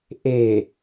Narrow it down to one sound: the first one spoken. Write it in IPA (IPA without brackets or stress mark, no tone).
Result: ʔ